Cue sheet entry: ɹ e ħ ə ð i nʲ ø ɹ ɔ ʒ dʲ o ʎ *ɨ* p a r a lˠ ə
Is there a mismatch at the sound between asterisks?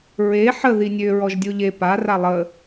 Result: yes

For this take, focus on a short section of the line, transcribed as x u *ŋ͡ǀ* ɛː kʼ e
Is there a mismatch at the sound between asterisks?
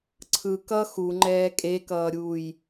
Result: yes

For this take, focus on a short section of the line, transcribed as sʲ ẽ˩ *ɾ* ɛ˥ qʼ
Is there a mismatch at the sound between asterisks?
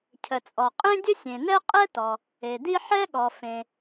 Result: yes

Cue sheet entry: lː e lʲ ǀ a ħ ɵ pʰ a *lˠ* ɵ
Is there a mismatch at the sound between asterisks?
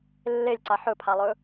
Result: no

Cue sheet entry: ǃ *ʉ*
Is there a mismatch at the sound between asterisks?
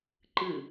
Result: yes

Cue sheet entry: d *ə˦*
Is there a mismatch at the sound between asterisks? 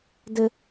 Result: no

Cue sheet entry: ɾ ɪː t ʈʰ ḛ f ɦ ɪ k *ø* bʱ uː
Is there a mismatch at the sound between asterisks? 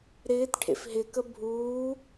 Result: yes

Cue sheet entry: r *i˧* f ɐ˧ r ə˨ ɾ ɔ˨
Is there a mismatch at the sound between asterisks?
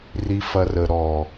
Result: no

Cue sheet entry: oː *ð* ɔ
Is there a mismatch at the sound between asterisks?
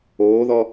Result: no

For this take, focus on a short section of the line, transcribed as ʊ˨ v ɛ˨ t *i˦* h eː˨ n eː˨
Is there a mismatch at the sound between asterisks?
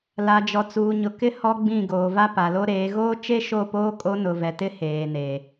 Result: yes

